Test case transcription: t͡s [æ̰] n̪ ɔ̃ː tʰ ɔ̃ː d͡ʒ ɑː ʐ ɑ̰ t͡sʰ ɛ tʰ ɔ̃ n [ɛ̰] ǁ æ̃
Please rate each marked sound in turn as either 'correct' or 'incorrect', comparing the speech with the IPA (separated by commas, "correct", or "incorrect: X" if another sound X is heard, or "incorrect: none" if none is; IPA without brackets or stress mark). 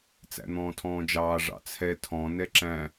correct, incorrect: ɛ